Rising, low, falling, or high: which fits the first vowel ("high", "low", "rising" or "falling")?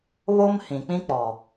high